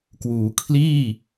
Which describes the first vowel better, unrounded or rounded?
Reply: rounded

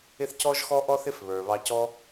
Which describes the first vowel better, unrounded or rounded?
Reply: unrounded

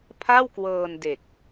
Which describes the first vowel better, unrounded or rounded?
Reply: unrounded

